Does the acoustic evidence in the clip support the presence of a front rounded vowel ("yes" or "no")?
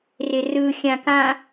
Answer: no